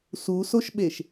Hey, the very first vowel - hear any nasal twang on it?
no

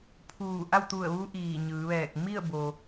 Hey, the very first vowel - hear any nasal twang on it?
no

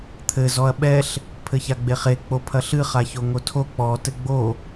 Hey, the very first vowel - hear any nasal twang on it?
no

